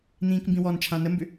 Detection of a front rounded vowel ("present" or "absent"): present